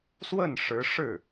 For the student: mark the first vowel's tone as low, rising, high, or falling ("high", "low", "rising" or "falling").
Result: falling